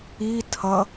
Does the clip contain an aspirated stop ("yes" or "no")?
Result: yes